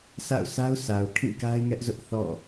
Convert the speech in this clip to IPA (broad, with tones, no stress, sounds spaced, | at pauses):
s a̰˦˨ ʊ̯ s a˦ ʊ̯ s a˨ ʊ̯ kʰ ĩ˦˨ k a˦ ɪ̯ ŋ ɛ˦ ʔ z ʊ˦ ʔ θ ɔ̰˦˨